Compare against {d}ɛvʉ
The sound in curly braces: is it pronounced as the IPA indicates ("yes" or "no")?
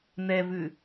no